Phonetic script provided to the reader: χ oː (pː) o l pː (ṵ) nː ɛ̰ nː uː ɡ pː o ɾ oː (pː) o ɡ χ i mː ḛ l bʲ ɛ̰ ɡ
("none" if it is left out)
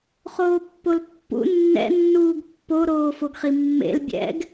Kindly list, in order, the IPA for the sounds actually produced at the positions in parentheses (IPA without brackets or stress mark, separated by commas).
pː, ṵ, f